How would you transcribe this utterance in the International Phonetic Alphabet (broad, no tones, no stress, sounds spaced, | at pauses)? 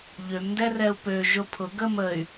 ʎ ø m n d ɛ r ɛ u̯ p ø ʒ ʊ pʰ ʊ ɡ ə m ə y̯